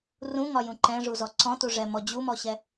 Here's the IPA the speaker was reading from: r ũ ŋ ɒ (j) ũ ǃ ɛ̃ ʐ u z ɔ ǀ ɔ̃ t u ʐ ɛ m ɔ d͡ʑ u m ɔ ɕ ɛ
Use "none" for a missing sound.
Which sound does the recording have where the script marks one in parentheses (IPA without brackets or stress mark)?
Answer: j